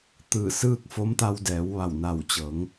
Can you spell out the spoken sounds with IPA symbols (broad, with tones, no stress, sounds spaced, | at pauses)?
t̪ ɯː˧˩ s ɯː˥˨ k̚ f o˧˥ m t̪ a˧ w d ɛː˩˧ w ʋ a˧˩ w n a˧˩ w t͡ɕ ɤː˩˧ ŋ